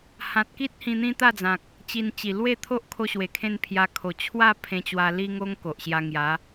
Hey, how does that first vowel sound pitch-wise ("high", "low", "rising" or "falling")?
low